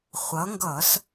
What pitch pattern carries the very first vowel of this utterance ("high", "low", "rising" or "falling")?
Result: rising